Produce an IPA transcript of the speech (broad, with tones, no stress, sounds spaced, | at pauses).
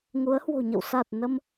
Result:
ŋ u˨˦ ə̯ h w o̤˨˩ ɲ ə̰˧˨ w s a˨˩ t̚ n ə˧ m